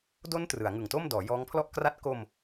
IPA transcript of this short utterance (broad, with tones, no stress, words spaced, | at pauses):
do˦˥n trɯ˩˦a̯ŋɯ˨˩ŋto˥˩mdɔː˩˦ jɔː˦˥ŋpʰlɔ˥˩ʔkra˥˩t̚ ko˧m